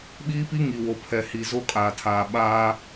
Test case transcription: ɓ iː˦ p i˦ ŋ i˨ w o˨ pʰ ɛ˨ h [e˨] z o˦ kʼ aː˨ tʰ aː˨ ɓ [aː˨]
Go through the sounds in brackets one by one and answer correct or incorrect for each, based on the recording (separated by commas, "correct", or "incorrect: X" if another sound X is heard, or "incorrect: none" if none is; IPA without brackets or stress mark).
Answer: incorrect: i˨, incorrect: aː˦